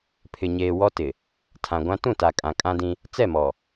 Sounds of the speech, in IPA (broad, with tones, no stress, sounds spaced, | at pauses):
pʰ ɪ˨ ɲ eː˨ w ɔ˦ t ɪ˨ | tʰ ã˨ ɡʷ ã˦ t ũ˦˨ t a˨ kʼ ã˨ kʼ ã˦ d ĩ˦ | t͡s ɛ˦˨ m ɔ˨